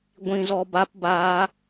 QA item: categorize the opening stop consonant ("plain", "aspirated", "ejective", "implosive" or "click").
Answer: plain